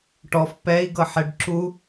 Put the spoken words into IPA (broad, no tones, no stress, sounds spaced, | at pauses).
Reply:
ʈ ɔ f p ɛ i̯ ɡ ɤ ħ ɛ ɖ ǁ u